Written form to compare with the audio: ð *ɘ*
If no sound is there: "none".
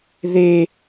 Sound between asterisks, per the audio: e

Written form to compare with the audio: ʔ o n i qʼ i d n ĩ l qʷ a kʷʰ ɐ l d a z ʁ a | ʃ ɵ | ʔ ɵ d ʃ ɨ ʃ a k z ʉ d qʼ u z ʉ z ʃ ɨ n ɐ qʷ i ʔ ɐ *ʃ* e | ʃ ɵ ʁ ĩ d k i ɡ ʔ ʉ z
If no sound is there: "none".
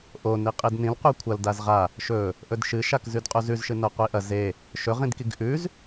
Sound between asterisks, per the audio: z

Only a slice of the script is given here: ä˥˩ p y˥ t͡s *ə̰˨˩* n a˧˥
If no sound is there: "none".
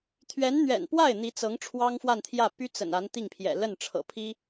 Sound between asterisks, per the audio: ə̰˨˩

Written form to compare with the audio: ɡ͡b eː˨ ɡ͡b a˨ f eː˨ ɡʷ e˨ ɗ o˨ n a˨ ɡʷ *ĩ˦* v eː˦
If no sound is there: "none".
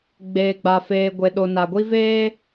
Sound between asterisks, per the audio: i˦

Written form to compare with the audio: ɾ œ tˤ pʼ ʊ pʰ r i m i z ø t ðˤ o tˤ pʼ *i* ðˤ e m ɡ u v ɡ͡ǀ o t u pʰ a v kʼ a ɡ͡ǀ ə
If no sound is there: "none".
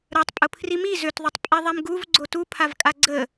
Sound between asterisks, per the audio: i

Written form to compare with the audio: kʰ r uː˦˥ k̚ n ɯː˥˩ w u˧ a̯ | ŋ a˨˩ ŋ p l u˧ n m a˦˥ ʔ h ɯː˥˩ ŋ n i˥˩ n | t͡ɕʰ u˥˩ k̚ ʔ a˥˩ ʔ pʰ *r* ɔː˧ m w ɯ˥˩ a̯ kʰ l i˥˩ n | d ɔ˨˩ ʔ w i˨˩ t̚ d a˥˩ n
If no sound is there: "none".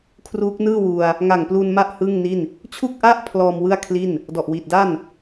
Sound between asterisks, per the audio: l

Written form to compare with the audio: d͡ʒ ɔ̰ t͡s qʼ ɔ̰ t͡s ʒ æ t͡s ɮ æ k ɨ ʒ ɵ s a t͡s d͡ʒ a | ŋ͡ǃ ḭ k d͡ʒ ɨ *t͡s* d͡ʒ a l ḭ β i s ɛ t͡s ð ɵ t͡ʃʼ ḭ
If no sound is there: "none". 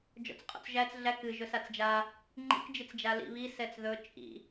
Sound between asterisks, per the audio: t͡s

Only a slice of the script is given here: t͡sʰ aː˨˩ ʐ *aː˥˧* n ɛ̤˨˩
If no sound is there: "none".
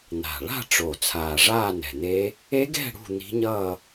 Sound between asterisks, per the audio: aː˥˧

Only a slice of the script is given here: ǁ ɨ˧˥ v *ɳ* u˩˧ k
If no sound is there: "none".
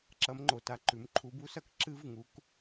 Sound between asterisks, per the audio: ŋ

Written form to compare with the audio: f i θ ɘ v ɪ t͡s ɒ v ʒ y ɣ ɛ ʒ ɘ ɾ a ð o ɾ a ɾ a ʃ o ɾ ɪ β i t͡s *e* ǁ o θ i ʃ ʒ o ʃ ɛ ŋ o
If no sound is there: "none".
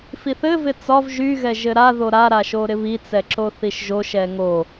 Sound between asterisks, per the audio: ɛ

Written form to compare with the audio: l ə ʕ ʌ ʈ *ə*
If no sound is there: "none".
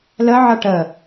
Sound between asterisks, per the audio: ə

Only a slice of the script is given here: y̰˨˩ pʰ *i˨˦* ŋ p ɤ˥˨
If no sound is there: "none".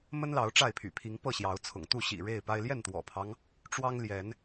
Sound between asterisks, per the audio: i˨˦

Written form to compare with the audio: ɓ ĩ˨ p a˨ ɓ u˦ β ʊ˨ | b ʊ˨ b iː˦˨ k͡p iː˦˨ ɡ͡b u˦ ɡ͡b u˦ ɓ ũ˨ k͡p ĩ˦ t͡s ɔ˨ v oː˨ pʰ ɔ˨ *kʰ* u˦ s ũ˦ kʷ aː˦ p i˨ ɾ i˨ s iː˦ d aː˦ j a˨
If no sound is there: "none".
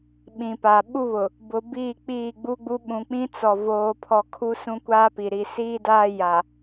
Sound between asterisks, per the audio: kʰ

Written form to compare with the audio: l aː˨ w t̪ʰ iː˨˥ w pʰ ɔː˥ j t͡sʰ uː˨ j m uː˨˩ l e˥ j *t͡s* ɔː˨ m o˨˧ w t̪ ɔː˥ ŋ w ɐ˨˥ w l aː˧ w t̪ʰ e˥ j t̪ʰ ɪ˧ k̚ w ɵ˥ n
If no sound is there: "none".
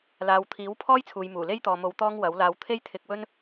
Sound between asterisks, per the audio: t̪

